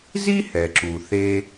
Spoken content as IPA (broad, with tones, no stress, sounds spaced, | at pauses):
z i˥ h ɛ˩ ǁ u˩ θ e˥